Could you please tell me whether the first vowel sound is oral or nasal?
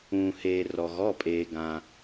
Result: nasal